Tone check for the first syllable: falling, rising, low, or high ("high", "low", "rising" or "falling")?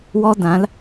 high